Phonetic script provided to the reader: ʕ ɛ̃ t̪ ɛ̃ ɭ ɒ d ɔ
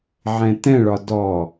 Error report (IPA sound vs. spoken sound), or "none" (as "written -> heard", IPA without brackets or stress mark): none